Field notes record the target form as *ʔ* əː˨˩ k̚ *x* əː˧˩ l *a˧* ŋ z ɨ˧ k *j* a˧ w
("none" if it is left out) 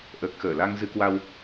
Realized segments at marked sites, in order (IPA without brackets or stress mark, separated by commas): ʔ, x, a˧, w